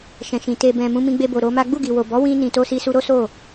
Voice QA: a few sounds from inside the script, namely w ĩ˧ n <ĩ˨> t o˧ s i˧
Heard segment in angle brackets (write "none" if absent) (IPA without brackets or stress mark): ĩ˨